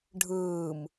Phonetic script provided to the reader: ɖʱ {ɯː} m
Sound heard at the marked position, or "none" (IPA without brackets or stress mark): ɯː